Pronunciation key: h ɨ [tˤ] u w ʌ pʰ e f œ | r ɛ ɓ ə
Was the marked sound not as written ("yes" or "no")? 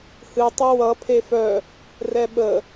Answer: no